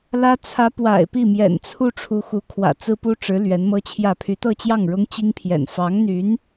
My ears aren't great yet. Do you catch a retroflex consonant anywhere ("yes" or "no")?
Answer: yes